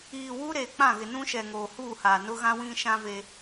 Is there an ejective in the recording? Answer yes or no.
no